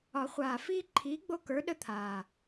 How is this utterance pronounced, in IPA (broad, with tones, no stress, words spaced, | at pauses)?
ɒ˨˩˦ χʷaː˨˩fiː˦ǃʰiː˨˥ ɡ͡bo˦kə˞˨˥ɗə˦ t̪ʰaː˨˩